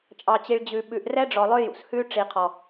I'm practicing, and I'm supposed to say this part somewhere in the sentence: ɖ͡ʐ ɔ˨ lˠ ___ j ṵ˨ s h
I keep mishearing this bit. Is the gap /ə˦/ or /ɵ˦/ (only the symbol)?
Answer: ɵ˦